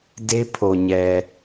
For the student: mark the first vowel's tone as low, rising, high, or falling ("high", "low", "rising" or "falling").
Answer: high